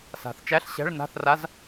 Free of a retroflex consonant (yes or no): no